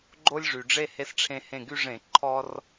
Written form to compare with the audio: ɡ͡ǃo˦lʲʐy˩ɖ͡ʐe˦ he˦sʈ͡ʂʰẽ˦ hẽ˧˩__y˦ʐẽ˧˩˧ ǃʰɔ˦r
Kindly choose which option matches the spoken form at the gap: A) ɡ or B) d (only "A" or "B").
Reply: A